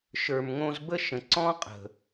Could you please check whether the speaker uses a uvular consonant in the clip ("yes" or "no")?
yes